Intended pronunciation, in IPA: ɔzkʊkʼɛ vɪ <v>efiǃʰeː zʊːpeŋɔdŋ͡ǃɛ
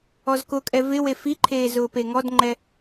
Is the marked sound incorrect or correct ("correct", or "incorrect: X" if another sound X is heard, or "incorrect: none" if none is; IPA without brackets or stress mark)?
incorrect: w